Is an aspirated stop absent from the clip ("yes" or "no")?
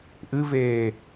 yes